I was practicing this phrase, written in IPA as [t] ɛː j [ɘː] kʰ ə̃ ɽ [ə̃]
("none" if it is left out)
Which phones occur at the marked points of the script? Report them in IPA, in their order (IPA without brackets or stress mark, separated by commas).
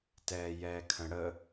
t, ɛː, ə